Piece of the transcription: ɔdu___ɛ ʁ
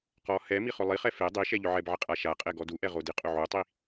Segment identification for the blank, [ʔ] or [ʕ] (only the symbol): ʔ